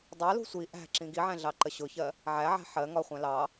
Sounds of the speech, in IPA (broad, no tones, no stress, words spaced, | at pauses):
dˤɑlṳ sʷi ʔæ̤ ǁĩɡiʕæ̃ ɮɑǃəɕʊçɜ | ʕæʕæ̤ ħɜ ŋɒχʷæ̃ lɑ